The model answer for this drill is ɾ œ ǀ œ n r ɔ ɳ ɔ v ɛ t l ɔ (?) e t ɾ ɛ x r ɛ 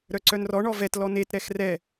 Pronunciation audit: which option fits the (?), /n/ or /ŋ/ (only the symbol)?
n